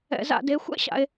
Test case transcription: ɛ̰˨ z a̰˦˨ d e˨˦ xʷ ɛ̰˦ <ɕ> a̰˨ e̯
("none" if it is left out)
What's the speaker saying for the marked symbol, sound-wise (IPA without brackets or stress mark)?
ɕ